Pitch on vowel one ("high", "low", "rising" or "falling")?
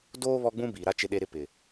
high